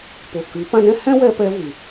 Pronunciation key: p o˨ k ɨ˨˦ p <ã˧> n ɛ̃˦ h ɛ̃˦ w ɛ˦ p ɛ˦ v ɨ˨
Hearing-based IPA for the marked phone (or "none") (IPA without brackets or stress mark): ã˧